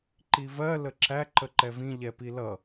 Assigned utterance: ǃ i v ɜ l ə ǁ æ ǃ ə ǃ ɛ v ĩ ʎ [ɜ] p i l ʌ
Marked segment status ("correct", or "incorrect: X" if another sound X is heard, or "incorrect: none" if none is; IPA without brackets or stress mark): incorrect: ɛ